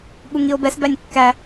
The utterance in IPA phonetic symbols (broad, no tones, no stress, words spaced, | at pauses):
ɠuŋio̯bɛs bænʲkːæ